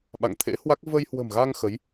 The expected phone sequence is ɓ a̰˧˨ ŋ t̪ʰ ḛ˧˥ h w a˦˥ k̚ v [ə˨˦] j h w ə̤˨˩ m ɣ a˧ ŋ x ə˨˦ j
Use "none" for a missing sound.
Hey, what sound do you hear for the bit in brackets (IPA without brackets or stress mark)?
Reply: ə˧